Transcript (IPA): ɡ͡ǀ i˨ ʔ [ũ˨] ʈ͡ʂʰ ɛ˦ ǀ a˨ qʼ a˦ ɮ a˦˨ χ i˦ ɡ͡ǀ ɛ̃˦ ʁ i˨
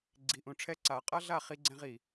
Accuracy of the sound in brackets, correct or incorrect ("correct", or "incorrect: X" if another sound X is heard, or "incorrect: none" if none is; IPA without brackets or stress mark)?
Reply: correct